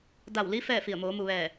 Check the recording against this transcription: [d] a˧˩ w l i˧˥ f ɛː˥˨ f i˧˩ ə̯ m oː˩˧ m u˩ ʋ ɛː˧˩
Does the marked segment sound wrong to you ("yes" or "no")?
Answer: no